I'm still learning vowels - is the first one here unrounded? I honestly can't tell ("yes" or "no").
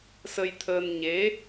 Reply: yes